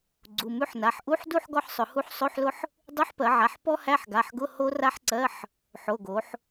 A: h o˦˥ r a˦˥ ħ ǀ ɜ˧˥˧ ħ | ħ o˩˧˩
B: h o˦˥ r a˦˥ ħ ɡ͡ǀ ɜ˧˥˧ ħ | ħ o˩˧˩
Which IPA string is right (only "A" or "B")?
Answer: A